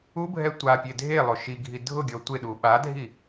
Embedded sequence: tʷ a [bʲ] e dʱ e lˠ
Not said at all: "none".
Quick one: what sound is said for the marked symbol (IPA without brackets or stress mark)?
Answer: pʲ